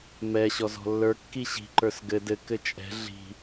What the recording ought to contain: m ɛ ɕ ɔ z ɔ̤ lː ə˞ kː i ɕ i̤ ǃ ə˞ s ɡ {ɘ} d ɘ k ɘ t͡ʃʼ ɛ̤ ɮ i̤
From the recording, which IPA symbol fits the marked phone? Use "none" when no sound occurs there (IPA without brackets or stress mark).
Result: ɘ